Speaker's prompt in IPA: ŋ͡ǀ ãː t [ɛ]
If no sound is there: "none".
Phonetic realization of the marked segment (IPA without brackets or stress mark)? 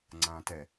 ɛ